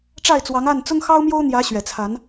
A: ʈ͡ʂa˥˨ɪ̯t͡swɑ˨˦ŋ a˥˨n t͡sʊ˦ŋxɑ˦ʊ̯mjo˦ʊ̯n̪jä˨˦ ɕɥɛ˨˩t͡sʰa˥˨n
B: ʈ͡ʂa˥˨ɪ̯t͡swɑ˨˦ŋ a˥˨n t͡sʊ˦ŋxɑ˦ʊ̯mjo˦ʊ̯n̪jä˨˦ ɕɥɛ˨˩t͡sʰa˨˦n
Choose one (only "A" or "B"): B